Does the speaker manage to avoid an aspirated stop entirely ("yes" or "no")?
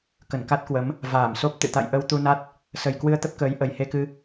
yes